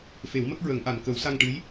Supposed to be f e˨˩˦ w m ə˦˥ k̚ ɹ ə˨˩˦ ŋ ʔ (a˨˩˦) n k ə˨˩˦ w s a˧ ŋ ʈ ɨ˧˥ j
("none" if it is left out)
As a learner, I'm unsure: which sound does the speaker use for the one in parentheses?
a˨˩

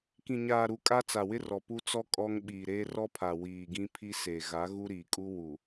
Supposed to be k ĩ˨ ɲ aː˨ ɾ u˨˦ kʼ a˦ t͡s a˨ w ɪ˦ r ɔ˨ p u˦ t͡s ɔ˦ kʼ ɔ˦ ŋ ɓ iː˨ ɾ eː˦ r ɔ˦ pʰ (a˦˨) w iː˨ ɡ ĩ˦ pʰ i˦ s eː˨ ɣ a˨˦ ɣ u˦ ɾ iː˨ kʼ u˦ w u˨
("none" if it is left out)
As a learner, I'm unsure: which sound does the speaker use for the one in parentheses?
a˨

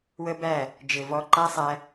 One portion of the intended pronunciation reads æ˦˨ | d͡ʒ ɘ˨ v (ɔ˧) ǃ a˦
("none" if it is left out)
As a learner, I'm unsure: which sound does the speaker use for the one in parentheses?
ɔ˧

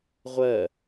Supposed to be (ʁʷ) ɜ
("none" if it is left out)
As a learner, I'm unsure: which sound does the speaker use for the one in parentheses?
ʁʷ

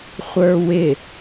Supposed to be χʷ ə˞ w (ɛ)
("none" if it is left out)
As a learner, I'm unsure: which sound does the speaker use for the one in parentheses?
ɪ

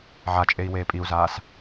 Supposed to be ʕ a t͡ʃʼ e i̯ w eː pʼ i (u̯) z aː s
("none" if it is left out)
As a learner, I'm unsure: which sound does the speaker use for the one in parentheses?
u̯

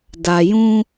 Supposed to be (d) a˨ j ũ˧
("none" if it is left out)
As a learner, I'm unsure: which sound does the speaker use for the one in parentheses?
d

